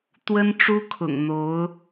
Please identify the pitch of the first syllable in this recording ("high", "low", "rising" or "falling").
high